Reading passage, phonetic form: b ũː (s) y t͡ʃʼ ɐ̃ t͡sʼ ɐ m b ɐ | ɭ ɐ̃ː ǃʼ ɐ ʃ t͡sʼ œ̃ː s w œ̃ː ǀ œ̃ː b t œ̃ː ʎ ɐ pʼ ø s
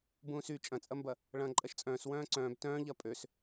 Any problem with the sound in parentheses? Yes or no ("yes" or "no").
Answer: no